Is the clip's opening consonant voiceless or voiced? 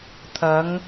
voiceless